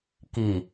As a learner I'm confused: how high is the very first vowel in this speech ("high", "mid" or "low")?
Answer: high